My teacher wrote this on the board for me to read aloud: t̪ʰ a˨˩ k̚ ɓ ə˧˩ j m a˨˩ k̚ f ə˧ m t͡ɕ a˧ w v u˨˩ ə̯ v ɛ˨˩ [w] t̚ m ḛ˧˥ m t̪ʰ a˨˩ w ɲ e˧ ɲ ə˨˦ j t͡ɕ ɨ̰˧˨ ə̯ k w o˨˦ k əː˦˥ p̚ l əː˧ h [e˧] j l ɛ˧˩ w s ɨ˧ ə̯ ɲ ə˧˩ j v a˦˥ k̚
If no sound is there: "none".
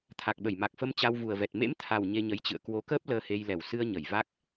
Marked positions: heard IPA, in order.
none, e˧

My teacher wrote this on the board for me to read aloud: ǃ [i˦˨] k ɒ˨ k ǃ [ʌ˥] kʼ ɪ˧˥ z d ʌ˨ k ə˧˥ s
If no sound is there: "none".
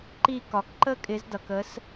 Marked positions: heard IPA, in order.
i˦˨, ə˥

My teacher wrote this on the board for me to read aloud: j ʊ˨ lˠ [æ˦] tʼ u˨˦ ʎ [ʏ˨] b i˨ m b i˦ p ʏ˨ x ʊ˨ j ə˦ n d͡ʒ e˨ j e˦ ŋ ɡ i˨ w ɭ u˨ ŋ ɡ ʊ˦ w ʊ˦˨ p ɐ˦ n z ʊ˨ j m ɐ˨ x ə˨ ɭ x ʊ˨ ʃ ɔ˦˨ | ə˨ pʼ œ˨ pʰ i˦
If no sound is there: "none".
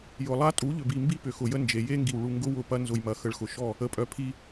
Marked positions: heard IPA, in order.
a˦, ʏ˨

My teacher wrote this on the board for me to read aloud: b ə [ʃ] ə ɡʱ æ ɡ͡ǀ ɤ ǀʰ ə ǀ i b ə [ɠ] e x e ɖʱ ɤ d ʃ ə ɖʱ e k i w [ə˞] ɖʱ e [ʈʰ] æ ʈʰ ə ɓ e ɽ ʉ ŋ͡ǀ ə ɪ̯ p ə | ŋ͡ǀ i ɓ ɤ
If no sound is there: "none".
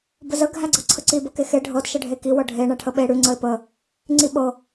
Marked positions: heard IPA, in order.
z, k, ɤ, ɳ

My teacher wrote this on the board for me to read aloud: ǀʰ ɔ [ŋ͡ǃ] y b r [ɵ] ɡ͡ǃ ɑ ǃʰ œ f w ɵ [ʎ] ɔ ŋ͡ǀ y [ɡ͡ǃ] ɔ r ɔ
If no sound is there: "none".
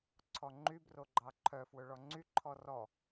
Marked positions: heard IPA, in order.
ŋ͡ǃ, o, ɭ, ǃʰ

